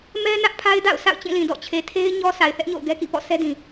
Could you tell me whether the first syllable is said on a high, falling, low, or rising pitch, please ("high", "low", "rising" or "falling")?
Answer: high